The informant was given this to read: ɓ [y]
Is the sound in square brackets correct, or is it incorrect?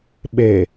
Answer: incorrect